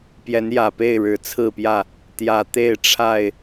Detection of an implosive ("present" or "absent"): absent